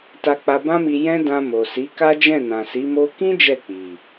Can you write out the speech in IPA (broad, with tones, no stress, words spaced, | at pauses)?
ta˧k͡pa˧bã˦mi˧ jɛ̃˦dã˧ mo˨ si˨˦ka˦d͡ʒɛ̃˦˨nã˨ si˨˦mo˦ kĩ˦ d͡ʒɛ˦˨k͡pi˨